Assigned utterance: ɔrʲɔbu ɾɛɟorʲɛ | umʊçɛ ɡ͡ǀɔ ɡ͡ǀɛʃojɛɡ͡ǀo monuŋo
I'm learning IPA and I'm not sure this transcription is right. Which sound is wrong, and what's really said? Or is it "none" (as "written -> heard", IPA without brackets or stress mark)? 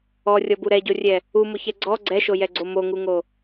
n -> ŋ